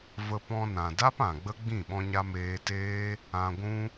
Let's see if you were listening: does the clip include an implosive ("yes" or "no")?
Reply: yes